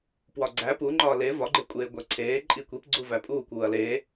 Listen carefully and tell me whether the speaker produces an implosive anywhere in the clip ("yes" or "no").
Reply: no